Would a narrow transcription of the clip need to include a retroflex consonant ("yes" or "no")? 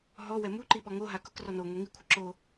no